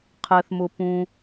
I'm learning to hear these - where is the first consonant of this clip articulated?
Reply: uvula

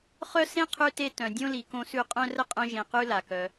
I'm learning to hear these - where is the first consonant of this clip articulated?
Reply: uvula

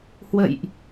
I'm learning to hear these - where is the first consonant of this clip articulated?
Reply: throat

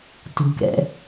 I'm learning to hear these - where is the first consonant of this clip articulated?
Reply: tongue tip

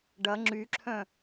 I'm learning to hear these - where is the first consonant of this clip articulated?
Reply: retroflex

